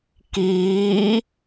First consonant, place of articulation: velar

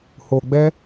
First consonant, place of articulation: glottal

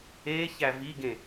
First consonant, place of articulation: palatal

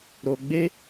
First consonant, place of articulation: alveolar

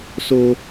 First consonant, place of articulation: alveolar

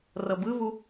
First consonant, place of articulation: alveolar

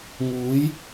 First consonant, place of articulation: velar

